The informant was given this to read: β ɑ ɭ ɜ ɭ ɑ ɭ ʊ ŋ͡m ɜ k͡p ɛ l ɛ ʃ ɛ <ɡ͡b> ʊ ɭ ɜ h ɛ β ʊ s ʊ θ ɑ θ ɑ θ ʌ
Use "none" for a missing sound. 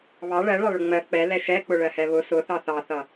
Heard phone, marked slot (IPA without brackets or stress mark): k͡p